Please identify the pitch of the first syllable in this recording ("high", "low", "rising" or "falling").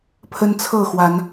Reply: high